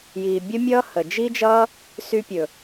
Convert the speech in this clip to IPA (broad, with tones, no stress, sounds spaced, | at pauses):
j iː˨ bʲ ə˦ mʲ ʌː˦ h ə˨ d͡ʒ i˦ d͡ʒ ʌː˦ | s y˧ pʲ ɵ˨